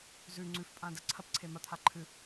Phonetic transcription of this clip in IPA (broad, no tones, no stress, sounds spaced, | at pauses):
z ʉ ŋ͡ǀ ʉ f pʼ ã d ɐ ǀʰ ɐ p ǀʰ e m ɐ t̪ʰ a ǃʰ ɨ